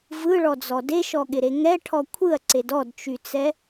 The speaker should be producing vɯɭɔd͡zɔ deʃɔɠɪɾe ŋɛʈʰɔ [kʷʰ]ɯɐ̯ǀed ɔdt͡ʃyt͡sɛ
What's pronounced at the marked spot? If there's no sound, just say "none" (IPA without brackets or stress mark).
kʷʰ